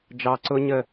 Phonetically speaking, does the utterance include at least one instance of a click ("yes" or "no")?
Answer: yes